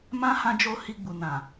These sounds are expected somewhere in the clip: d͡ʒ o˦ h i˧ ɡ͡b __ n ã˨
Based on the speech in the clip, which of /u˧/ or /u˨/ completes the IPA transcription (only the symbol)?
u˨